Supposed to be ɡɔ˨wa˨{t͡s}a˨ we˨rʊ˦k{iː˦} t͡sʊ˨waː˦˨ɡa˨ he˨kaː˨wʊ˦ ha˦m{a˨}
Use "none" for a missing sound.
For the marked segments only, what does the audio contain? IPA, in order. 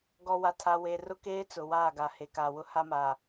tʰ, eː˦, aː˨

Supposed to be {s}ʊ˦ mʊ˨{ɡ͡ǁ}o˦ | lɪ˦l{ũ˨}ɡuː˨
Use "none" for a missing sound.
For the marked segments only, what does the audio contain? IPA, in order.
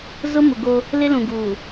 z, ɡ, ũ˨

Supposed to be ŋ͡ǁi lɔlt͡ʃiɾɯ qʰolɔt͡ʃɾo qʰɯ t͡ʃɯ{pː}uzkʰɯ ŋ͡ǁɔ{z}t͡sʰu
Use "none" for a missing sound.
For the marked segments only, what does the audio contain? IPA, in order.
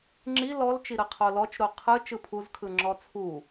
pʰ, none

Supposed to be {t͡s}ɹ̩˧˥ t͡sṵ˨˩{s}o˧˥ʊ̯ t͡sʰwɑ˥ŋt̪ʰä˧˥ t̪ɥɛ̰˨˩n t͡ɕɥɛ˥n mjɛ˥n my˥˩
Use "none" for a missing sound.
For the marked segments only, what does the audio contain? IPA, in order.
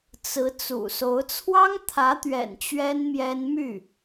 t͡s, s

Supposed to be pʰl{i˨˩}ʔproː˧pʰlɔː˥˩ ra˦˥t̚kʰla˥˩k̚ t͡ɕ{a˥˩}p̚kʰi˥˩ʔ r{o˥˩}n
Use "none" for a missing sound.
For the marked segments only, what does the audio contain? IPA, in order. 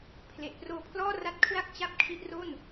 e˨˩, a˥˩, o˥˩

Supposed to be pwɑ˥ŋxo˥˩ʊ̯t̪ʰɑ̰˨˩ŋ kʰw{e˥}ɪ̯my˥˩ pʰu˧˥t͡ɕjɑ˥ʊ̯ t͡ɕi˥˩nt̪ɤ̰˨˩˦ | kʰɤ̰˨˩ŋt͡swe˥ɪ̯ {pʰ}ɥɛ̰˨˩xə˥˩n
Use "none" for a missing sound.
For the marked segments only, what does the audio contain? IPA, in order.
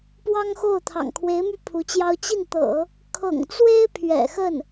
e˧˥, pʰ

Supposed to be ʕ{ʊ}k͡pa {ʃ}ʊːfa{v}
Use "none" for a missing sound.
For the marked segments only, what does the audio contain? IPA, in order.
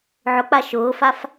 ʊ, ʃ, f

